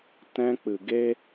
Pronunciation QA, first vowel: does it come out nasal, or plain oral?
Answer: nasal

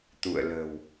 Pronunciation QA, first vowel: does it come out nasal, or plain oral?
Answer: oral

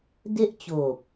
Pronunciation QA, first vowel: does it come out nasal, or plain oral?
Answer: oral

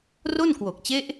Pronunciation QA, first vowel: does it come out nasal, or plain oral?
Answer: oral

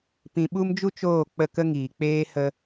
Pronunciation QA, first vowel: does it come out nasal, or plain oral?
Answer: nasal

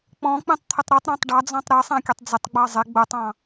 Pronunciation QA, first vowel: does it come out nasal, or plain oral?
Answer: nasal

